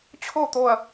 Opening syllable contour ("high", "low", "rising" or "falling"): falling